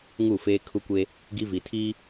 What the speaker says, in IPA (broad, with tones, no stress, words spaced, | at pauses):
ŋu˦˨feː˦ kʰu˦kʷe˦ | ɡi˦vi˨tʰiː˦